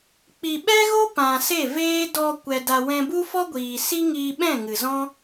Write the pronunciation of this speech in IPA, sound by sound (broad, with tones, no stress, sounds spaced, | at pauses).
k͡p i˨ ɓ ɛ˦ ɣ o˦ p ã˨ s e˦˨ v eː˦ d ɔ˧ kʷ ɛ˧ d a˧ w ɛ̃˧ b u˦ f ɔ˦ ɡʷ iː˨ s i˦ ŋ iː˧ ɓ ɛ̃˦˨ ŋ ɨ˨ z ɔ̃˦